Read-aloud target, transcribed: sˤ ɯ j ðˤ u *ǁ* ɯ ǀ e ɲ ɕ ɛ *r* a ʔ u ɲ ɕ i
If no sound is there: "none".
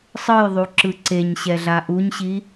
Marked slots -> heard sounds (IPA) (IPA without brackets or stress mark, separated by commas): ǁ, ɮ